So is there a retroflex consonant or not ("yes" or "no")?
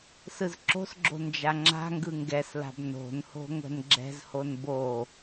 no